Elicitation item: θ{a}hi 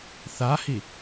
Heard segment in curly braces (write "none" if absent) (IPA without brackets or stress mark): a